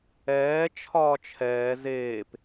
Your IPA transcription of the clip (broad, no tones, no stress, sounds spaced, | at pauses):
ɛː t͡ʃʰ ɒː t͡ʃʰ ɛː z eː p